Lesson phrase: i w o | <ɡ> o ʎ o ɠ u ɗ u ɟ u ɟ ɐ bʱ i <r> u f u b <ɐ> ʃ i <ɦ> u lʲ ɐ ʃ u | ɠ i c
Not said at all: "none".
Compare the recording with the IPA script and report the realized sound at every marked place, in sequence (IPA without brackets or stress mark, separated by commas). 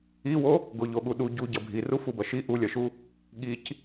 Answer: ɡ, r, ɐ, ʔ